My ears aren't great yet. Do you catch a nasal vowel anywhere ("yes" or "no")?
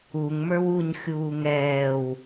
no